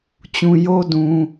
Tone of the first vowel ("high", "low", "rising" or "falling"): low